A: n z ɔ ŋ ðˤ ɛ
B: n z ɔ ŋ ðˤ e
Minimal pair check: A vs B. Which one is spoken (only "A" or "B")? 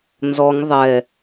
A